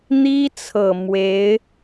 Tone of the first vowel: high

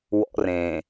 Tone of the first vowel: high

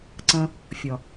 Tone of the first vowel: high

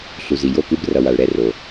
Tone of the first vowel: low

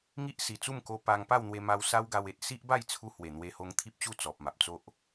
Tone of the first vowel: high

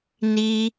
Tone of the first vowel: high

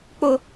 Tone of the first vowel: high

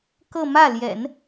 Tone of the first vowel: falling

